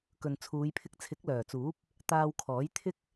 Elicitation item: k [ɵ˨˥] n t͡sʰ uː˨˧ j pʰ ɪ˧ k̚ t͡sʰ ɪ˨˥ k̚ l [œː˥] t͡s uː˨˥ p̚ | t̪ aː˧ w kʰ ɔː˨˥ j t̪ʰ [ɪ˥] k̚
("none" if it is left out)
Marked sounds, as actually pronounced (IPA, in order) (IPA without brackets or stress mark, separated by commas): ɵ˨, œː˨˩, ɪ˥